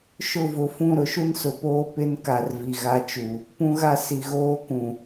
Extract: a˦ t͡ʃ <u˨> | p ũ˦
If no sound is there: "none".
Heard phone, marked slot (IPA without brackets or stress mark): u˨